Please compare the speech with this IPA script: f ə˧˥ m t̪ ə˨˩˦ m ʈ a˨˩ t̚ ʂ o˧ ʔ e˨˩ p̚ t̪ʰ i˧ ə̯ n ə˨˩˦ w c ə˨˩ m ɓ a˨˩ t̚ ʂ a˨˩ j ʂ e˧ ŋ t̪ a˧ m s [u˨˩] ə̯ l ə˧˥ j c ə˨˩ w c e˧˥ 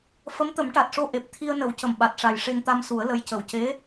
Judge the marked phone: incorrect: u˨˩˦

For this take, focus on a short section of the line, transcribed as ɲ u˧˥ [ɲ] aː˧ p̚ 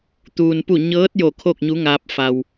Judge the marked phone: incorrect: ŋ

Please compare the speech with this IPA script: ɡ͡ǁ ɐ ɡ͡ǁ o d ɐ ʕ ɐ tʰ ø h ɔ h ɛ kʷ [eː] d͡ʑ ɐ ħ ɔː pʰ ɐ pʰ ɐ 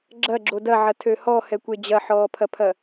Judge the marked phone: incorrect: e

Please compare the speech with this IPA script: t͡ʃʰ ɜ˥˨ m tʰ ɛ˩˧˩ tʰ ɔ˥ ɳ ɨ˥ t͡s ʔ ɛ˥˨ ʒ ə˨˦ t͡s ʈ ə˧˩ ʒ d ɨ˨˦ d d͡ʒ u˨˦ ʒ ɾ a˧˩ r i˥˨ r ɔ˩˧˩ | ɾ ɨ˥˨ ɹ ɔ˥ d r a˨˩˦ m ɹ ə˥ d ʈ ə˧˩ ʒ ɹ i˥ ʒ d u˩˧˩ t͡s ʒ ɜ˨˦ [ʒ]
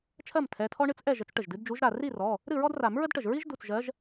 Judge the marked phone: correct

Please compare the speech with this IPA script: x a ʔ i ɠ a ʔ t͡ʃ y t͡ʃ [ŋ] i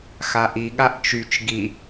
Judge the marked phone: incorrect: ɡ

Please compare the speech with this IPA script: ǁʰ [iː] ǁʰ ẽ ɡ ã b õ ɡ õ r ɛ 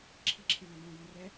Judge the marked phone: incorrect: i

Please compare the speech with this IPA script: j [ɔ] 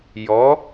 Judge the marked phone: correct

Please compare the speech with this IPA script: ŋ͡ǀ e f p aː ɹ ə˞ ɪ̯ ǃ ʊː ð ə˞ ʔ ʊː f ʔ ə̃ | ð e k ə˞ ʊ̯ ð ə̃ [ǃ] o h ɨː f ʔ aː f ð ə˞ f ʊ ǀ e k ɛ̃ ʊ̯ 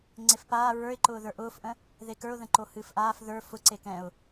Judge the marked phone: correct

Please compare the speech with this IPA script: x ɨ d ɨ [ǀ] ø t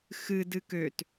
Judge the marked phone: incorrect: k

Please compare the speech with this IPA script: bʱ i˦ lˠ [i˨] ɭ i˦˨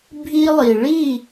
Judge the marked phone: correct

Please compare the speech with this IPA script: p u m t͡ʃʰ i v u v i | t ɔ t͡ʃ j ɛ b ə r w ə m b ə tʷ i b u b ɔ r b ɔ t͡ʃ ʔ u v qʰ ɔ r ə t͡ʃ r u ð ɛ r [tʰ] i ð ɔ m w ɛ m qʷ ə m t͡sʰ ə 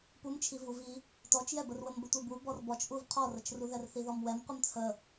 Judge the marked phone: incorrect: θ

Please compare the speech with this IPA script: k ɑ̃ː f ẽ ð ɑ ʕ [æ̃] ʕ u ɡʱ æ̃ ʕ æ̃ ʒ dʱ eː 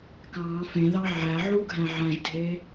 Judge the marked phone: incorrect: æ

